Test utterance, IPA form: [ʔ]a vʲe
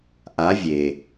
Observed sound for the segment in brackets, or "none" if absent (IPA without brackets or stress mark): ʔ